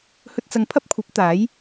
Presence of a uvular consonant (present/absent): absent